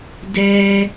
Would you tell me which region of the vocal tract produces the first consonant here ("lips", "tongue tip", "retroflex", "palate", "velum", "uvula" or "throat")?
tongue tip